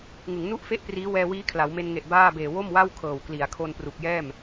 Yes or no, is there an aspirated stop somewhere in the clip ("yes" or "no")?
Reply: yes